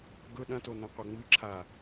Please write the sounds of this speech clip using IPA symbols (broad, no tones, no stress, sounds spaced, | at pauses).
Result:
ɡ ɵ ɗ ɐ̃ t o n ɐ̃ qʷ ɐ ŋ͡m ɨ ǁʰ a